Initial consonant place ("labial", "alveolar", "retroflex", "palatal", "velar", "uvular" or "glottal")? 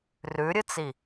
alveolar